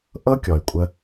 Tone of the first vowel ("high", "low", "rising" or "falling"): high